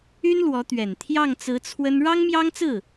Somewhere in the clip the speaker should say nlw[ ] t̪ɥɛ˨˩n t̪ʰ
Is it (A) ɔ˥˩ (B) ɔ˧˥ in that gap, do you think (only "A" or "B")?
B